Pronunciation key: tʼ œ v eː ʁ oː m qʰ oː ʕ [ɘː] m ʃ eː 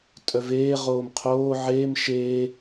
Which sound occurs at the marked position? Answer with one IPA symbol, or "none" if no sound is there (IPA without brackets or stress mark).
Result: eː